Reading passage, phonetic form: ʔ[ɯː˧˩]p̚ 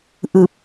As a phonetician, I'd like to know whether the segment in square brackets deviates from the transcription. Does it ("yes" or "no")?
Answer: no